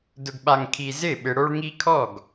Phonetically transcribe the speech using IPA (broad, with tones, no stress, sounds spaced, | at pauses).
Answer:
d ʊ˨ ɡ ɓ a˨ ŋ kʰ i˨ z ɪ˥˩ ɓ ɪ˨ ɽ o˦ ɭ ŋ i˦ kʰ ɔ˥˩ ɡ